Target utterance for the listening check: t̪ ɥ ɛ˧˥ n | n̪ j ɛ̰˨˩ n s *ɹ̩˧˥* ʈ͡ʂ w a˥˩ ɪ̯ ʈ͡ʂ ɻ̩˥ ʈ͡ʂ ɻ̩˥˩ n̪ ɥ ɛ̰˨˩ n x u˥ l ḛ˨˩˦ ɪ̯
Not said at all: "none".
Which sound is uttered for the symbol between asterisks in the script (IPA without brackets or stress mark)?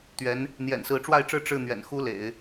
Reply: ɹ̩˧˥